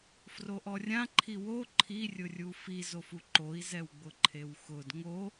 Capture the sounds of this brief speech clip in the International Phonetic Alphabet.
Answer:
froʔɔrʲã ǃʰiwo ǃʰirʲʊrʲu fizofu ǃoi̯zɛwɡ͡bʊ ǃʰewxʊd ŋo

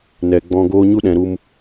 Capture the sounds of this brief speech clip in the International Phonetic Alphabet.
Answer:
nɛ˨ɡ͡bɔ̃˧ɡoː˦ ɲu˦ɗɛ̃˨ɾu˧m

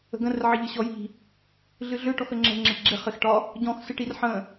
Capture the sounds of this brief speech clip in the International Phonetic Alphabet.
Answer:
ə̤ɡə̃r ʕɪʎɨɕɔji̤ | ɮɨɮø ʈɔxəŋ͡ǁə̤ ŋ͡ǁɪʈɡ͡ǁɪ χɪxʈɒ | ɟɔ̃x sɨʈirħə̃

